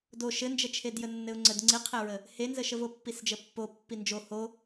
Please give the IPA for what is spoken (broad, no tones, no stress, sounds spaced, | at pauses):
d o ʃ ɘ n d͡ʒ ə t͡ʃʰ e d j ə nː ɘ ʊ̯ ŋ͡ǀ ə d ŋ͡ǀ i qʰ e ɹ ə | h e n z ə ʃ ə v o pː i s d͡ʒ ə pː o pː i n d͡ʒ o h o